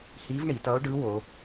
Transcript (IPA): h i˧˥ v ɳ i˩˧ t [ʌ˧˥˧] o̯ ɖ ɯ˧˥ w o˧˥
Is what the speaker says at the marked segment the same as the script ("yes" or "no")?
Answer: no